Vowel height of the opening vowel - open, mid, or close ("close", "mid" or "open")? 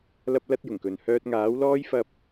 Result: open